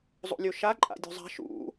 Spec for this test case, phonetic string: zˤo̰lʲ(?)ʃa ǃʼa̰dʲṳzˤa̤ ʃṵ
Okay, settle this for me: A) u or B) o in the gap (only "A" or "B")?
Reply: B